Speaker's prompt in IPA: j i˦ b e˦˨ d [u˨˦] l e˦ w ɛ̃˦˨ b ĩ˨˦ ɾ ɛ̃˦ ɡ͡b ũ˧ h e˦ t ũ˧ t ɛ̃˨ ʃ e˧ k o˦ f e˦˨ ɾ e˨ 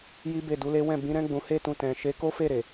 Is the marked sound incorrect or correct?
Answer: correct